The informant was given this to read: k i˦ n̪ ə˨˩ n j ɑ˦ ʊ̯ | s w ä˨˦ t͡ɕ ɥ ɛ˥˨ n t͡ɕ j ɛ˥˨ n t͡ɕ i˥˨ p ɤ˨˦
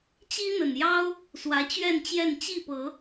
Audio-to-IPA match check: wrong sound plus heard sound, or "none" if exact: k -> t͡ɕ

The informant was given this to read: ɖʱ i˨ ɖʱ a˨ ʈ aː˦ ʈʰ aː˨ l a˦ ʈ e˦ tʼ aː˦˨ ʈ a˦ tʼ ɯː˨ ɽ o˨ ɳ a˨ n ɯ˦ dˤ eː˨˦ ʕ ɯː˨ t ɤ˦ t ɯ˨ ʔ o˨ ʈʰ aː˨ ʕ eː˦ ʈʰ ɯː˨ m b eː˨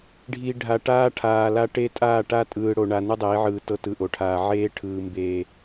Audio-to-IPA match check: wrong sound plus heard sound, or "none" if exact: none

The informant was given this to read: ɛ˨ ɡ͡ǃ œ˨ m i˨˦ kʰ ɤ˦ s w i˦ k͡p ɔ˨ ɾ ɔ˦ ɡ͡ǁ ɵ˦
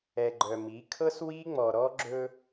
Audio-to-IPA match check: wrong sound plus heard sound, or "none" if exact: k͡p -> ŋ͡m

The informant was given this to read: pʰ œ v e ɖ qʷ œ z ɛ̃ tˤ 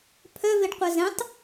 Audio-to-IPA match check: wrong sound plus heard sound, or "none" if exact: none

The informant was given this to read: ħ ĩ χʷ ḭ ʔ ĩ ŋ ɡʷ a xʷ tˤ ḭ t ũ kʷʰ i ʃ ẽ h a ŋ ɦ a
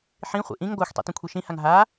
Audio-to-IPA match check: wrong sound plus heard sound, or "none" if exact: ẽ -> ĩ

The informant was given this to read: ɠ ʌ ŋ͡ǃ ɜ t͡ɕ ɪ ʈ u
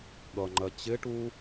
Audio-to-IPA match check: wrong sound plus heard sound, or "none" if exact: none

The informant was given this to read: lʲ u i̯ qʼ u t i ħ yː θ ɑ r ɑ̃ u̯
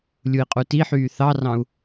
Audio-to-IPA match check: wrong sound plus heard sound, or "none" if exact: none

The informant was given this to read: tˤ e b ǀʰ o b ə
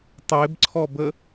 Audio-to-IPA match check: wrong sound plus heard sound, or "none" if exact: o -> ɔ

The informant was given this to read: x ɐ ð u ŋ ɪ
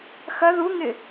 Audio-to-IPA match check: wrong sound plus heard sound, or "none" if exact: none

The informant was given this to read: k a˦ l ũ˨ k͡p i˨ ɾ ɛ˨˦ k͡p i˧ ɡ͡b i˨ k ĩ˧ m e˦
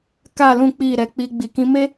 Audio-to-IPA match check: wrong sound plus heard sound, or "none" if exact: a˦ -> a˨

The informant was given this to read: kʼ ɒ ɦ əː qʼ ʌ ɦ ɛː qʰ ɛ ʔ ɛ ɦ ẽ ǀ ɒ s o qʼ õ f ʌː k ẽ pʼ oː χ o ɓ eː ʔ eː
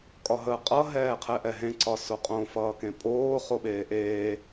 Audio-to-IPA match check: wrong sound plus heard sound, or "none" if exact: none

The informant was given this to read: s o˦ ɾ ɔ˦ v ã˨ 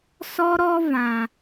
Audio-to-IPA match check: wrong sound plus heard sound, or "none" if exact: o˦ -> ɔ˦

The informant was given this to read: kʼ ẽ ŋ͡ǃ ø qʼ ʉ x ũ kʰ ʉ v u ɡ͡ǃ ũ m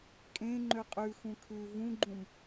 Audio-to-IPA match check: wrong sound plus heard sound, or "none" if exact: u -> ũ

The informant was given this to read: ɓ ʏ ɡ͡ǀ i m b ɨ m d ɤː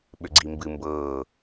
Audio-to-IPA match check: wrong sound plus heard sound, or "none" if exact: d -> b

